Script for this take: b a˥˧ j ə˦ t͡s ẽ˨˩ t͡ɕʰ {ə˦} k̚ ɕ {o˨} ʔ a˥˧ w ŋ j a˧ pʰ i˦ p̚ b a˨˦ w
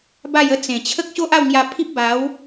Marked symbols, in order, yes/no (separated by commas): yes, no